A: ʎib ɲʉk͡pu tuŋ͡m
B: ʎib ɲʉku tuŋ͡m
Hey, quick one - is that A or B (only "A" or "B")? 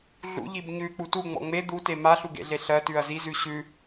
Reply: A